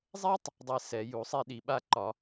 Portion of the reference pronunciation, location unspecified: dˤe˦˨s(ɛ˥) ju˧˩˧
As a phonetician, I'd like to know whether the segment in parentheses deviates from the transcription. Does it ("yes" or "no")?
yes